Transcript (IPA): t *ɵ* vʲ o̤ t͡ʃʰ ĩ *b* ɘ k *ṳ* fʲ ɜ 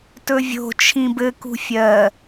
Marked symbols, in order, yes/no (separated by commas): yes, yes, yes